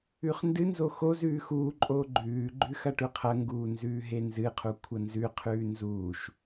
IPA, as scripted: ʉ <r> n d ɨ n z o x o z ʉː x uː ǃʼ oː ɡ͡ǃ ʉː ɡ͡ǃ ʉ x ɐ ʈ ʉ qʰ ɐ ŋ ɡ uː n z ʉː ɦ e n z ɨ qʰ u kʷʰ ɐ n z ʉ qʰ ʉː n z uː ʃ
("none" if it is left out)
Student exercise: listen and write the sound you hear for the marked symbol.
χ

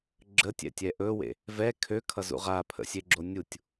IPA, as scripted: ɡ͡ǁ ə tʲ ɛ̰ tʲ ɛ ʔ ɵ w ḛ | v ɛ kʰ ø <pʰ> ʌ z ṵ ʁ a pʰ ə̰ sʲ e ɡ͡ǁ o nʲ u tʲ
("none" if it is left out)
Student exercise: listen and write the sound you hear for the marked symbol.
kʰ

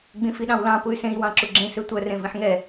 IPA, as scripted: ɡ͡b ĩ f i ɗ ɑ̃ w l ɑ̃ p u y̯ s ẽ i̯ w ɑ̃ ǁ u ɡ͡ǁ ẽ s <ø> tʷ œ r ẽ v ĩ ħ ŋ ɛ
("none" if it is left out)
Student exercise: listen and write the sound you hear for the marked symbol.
ø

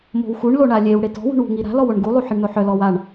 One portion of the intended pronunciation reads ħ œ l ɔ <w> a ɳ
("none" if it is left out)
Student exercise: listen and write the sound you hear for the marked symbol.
w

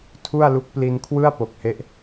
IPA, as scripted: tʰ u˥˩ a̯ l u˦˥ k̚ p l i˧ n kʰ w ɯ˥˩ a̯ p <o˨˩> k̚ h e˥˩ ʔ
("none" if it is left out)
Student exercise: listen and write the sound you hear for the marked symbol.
o˨˩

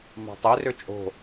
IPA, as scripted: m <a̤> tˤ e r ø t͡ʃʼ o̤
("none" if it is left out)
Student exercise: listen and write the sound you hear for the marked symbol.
ɑ̤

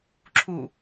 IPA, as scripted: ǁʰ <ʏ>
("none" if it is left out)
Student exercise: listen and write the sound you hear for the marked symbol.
u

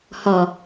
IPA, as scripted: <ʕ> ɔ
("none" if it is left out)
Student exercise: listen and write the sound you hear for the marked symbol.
h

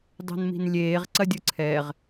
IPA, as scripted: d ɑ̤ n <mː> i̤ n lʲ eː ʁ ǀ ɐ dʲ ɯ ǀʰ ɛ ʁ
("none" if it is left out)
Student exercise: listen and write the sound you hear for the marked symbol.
m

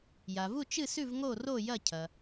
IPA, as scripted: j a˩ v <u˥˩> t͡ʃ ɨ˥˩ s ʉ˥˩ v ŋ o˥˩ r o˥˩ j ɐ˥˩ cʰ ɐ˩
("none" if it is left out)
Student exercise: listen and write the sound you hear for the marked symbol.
u˥˩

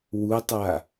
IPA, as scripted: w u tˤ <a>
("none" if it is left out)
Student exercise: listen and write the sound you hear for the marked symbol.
a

